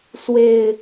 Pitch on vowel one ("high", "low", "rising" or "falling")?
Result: low